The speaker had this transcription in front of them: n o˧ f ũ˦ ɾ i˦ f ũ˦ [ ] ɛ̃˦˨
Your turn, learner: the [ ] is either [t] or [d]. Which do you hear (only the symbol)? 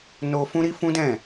d